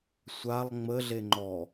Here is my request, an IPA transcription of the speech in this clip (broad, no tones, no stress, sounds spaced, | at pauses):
sʷ a lˠ ŋ͡m ə ɮ e ŋ͡ǃ ɔ